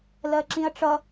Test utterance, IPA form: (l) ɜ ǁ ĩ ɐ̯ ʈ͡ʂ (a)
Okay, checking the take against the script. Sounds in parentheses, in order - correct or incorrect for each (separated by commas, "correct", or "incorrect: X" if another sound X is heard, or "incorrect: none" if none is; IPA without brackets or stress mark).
correct, incorrect: ʌ